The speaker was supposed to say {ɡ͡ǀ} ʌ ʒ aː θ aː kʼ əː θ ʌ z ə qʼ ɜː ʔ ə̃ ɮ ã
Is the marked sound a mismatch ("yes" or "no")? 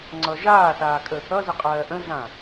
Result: yes